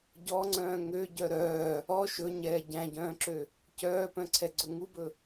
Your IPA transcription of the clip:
ɟɔŋ͡ǀœ̃ː ŋøɟœ ɾœː | ɔ ʃɵɲɛː ɟæ̃ɟœ̃ːǁø | cœːpœ̃ǀʰɛɡ͡ǀɵ ŋubɵ

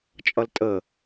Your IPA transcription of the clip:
t͡ʃʼʌltʼə

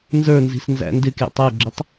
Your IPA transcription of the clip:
nzə˞nzi̤s nzæ̰ndɪkjə̰ tˤə˞ɡ͡ǁətˤ

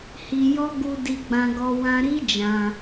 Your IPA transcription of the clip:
hi˧jɔ˦ ɡu˧ di˧ɡ͡bã˧ɡɔ˧ wã˧ɾi˦d͡ʒã˧

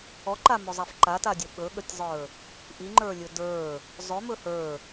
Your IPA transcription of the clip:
ɔǃamɵzˤaf ǃatadʲə ɓɵɠətʲzˤə˞ | ʔiŋ͡ǃə˞lʲɵ də˞ | zˤɵmɵ hə˞

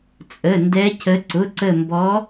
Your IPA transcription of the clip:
t͡sʼə˩˧˩ndɛ˨˦cə˨˦ ǀʊ˩˧˩ǀə˧˩mbɔ˨˦

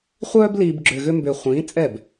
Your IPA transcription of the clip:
χʷœː˥bliː˧b ɡ͡ǁʏː˧ɣʏ˥mbʏː˧ χʷĩː˨˥t͡sʼɛ˥˩b

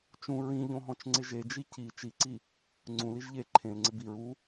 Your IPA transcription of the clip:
t͡ʃũ ɹĩʎõɦɔ̃t͡ʃŋ͡ǀɪ ʒed͡ʒi ci t͡ʃiǀi | ŋ͡ǀũliʒ ʎe ǃʰẽlŋ͡ǀɪ biɹ u

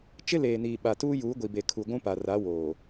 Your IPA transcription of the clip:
t͡ʃɪ˦leː˨niː˨ ɓa˨tuː˦juː˨˦ ɡʷi˨be˨kʰu˨ ɡʷũ˦pa˨ra˨˦ woː˨

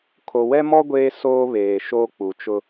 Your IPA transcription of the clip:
kʰo˨ wɛ˦mɔ˦ ɡʷeː˦soː˦ βeː˨ ʃoː˦k͡pu˨t͡ʃʊ˦

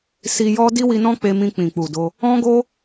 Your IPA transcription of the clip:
si˧jɔ˦ di˦wi˧nɔ̃˦ k͡pe˧mĩ˧ k͡pĩ˨k͡pu˨do˧ | ɔ̃˦ɡo˦

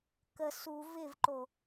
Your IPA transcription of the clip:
kə su vɪvǃo

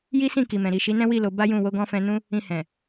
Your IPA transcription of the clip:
ji˦sĩ˦˨ki˨mɛ̃˨ ɾi˨ʃi˨˦nɛ̃˦wi˦˨ lo˧ba˦jũ˦˨ wo˧ɡɔ̃˧fɛ̃˧ nũ˦ | ĩ˧hɛ̃˨

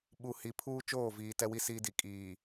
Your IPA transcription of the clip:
ɓu˨ hi˨pʰuː˦ t͡ʃoː˦˨viː˨ tɛ˦wi˦siː˦di˨ kʼiː˨

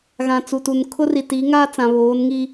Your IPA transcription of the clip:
ɣã˨t͡su˨tu˨n kʰʊ˦ri˨tiː˨˦ŋaː˦ t͡sã˨βoː˨˦nŋi˦

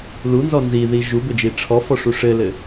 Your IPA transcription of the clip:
lunzɔ nziði ʒubɘd͡ʒi ʈ͡ʂʰɔfɔʂu ʂɘlɘ

